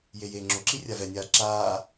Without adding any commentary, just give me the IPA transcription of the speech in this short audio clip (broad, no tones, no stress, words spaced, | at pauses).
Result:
jejeːŋ͡ǁoǁi rʲavɛnʲaː ǁaː